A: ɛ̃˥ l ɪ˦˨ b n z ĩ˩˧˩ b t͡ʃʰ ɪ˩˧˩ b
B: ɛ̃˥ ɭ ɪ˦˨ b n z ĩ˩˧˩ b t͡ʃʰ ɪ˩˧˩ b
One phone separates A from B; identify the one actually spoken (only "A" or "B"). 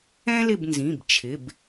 A